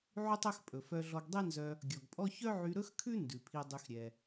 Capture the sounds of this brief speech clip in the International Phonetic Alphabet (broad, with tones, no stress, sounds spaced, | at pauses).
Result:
ʕ y˥ tˤ œ˥ x pʼ ɵ˩ f œ˧ ɮ ɔ˧ ɡ dˤ e˥ n z œ˧ | ɡʲ ɔ˩ ɡ pʼ ɔ˥ ç œ˥ ʕ y˧ ɾ ɵ˥ x kʰ ʉ˥ n d ʉ˩ pʰ i˧ dˤ y˧ x ɾʲ ɛ˩